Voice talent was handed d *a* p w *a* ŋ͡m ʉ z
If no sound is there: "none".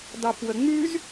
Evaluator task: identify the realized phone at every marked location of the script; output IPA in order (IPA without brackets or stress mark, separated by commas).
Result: ɑ, ə